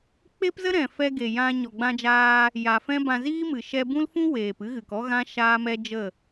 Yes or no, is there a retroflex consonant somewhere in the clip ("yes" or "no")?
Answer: no